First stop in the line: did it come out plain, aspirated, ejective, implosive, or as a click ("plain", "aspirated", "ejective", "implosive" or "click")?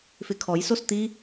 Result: aspirated